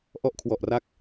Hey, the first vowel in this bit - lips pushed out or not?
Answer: yes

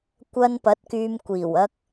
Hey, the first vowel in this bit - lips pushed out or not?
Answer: no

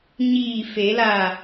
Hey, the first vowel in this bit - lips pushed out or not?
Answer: no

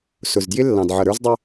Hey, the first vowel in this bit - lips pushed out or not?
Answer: yes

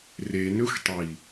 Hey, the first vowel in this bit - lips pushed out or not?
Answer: no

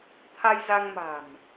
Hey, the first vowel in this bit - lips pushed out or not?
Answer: no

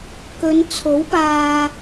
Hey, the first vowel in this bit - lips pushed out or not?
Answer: yes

